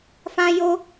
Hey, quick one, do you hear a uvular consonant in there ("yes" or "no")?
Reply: no